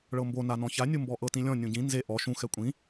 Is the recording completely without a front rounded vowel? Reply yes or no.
yes